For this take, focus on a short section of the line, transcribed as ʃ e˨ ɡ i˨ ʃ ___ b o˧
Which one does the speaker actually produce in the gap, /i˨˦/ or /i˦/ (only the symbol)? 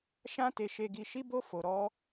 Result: i˨˦